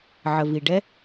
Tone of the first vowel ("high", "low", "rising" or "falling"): low